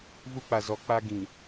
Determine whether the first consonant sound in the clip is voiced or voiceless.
voiced